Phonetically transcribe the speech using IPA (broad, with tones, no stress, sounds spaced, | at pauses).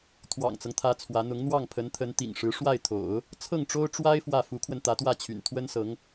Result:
t̪ʰ w ɑ̰˨˩ ŋ t͡s ɤ˦ ŋ t̪ʰ ä˧˥ t͡sʰ w ä˧˥ n̪ ʊ˧˥ ŋ n̪ w ɑ˥˩ ŋ pʰ ə˧˥ n t̪ʰ ə˧˥ n t̪ ḭ˨˩ ŋ ʂ ɻ̩˧˥ ʂ w a˥˩ ɪ̯ t̪ʰ o̰˨˩˦ ʊ̯ | t͡sʰ ɤ˥˩ ŋ ʈ͡ʂ o˥ ʊ̯ ʈ͡ʂ w a˥ ɪ̯ f w ä˥˩ f u˧˥ kʰ w ə˧ n t̪ ä˧˥ t̪ w ä˥˩ t͡ɕʰ y̰˨˩ n t̪ʰ w ə˥ n s ɤ˧˥ ŋ